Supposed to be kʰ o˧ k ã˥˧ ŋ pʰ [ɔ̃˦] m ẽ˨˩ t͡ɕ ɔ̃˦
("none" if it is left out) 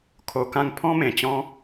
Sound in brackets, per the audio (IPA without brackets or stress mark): ɔ̃˦